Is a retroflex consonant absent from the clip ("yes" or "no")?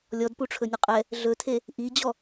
no